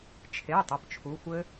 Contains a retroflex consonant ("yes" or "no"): no